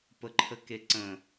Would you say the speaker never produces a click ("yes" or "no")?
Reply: no